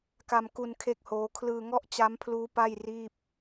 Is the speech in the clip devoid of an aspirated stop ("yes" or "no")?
no